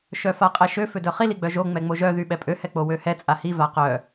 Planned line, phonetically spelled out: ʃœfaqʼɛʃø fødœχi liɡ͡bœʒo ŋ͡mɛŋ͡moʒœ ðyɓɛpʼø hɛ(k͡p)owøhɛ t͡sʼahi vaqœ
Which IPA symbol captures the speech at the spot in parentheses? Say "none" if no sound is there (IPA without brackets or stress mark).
k͡p